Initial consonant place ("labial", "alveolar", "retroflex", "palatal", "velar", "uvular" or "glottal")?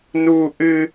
alveolar